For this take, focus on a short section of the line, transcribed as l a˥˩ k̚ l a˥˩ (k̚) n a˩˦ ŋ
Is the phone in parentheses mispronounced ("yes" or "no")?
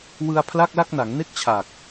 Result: no